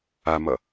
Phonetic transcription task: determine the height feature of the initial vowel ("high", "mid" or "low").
low